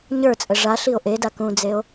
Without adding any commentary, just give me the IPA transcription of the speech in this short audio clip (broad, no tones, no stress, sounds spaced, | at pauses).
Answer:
ɲ ə˞ t͡sʼ ə ʐ a ɬ i o̯ ʔ e d a k ũ d͡z e o̯